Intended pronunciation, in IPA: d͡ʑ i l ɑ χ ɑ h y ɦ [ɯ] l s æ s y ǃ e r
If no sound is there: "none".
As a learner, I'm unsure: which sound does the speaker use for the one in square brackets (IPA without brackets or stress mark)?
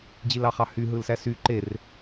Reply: ɯ